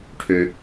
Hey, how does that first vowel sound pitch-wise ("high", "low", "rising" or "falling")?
low